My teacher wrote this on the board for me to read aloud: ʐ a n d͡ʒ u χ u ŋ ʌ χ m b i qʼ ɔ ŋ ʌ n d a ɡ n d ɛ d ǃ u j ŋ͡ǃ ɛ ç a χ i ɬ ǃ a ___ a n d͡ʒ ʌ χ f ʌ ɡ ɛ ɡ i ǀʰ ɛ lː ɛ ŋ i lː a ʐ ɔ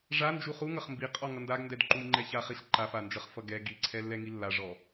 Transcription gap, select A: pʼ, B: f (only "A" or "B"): B